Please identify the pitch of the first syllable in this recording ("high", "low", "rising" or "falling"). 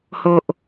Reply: low